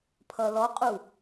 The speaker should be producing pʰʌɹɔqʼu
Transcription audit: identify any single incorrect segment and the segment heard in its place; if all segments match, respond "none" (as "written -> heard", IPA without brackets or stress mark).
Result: ɹ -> l